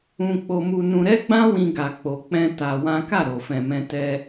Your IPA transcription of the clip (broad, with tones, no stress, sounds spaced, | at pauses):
ũ˧ k͡p o˧ m u˧ n ũ˧ ɾ ɛ˦ ɡ͡b ã˦ w ĩ˧ ɡ a˧ k͡p o˧ k͡p ɛ̃˧ t a˧ w ã˦ k a˦˨ ɾ o˨ f ɛ̃˨ m ɛ̃˧ t ɛ˧